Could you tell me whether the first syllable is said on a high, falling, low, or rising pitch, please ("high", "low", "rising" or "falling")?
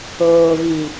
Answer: low